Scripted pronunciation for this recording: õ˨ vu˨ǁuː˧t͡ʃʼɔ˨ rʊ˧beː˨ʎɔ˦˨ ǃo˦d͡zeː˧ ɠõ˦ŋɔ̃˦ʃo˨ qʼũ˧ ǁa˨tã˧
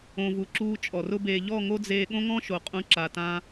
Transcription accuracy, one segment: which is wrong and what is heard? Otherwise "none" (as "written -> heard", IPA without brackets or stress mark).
ǃ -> ŋ